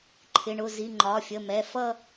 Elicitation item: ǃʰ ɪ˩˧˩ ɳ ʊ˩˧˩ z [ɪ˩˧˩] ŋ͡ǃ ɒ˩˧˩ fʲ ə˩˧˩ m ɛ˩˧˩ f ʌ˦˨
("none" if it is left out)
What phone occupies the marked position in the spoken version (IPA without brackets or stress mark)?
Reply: i˩˧˩